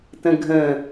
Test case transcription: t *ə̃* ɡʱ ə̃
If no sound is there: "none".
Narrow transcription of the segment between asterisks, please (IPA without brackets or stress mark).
ə̃